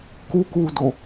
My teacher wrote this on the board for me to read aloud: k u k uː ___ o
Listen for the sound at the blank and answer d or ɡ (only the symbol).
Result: d